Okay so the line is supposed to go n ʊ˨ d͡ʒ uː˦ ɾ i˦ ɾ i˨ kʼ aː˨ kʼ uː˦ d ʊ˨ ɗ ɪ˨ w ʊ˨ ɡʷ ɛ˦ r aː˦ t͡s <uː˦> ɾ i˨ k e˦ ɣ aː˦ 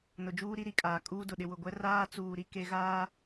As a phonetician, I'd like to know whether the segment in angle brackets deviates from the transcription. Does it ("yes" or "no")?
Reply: yes